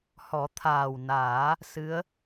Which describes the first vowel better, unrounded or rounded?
rounded